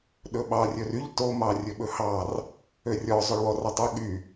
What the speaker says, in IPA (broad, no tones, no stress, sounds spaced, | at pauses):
ɗ ɵ ɓ ɑ rʲ ɵ r y ʎ t o m ɑ rʲ ɵ ɓ ɵ h ɑ r | ø rʲ ɔ zˤ ɵ ɭ w ɔ r ɑ tˤ o ɠ y